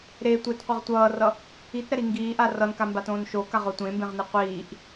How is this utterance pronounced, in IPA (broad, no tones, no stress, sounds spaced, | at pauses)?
ɾ e tʷ e t qʷ e ʁ tʷ ʌː r ʌ | i t ɾ ɛ ɾ i ŋ ɡ iː ʔ a r ʌ n k a m b a t õː n ʃ o k a ʁ o tʷ ẽ m b ẽ ʁ n i qʷ iː ʔ